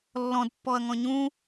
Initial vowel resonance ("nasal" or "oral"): nasal